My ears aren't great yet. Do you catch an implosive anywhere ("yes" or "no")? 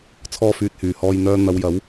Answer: no